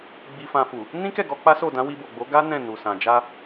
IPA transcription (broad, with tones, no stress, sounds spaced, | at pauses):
ɡ͡b i˧ f ã˧ f u˨ | n ĩ˦ k ɛ˦˨ ɡ ɔ˧ k͡p a˦ s o˦˨ d ã˨˦ w i˧ b o˨ ɡ͡b o˨˦ ɡ a˦ n ɛ̃˦˨ n u˨ s ã˨ d͡ʒ a˧